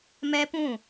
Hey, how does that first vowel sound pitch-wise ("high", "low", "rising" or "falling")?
high